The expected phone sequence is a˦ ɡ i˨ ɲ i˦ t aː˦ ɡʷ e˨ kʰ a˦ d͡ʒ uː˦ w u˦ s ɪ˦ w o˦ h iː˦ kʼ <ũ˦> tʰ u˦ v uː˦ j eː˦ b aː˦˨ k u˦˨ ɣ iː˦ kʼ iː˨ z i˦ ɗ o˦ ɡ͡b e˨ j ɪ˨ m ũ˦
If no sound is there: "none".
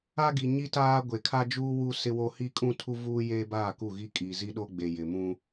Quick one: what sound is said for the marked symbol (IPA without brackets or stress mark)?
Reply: ũ˦